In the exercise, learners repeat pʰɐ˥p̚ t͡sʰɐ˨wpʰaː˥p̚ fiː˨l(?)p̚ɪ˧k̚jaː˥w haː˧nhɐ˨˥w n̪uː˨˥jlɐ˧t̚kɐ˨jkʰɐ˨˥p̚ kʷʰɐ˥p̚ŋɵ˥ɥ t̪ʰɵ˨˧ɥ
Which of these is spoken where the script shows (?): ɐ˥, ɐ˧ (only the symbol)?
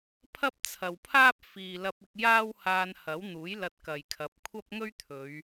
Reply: ɐ˧